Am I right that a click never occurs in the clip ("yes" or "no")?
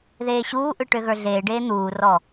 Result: yes